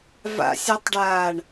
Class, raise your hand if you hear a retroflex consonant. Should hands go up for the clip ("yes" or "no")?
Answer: yes